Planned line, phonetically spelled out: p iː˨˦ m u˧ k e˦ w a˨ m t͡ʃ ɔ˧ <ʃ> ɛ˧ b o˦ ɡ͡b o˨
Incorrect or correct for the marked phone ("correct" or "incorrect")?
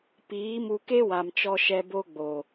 correct